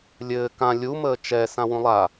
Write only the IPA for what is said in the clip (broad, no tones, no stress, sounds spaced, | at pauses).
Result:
lʲ ɘː k ã lʲ u m əː t͡ʃ ɛ s ã w ũ lˠ a